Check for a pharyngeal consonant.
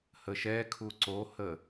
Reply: absent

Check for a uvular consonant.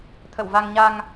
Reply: absent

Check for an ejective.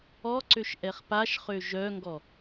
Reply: absent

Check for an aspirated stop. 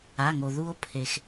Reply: present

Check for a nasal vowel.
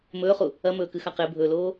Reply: absent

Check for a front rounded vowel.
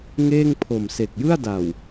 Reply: absent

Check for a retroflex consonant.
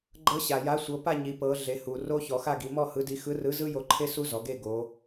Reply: absent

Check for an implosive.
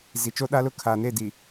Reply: present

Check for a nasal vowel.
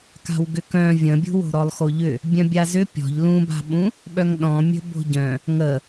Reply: present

